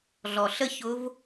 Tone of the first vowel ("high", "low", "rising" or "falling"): low